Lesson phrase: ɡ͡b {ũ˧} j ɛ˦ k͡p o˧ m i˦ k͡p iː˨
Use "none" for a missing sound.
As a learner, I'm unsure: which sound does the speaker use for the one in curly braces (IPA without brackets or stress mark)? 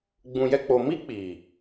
ũ˧